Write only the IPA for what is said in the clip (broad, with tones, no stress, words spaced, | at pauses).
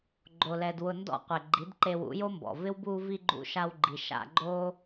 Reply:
ɡ͡ǃo˧lɛ˧d wʊ˧ ndɔ̰˧ qʷe˨ɡ͡ǃi˨˦dǃe˧ wṵ˨˦jo˦mbɔ̰˨ vɪ˦w buː˧vi˧ ɡ͡ǃṵ˧ʃa˧wɡ͡ǃi˨ ʃa̰˧ɡ͡ǃoː˦